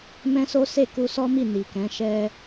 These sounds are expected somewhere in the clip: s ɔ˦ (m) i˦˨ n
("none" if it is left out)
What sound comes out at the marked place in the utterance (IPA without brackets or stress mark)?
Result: m